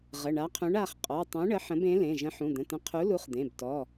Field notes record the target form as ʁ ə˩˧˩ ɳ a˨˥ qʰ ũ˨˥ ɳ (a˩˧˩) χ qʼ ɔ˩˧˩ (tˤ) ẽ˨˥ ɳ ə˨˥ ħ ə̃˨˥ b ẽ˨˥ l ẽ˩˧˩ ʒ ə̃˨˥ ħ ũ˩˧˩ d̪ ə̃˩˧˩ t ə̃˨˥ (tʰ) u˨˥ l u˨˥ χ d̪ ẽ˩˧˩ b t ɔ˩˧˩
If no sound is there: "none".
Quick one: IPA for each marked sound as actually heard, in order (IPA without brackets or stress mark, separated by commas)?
a˩˧˩, tˤ, qʰ